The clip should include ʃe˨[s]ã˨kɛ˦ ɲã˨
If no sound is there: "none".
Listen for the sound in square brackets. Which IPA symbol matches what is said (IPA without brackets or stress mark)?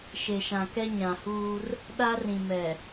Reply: ʃ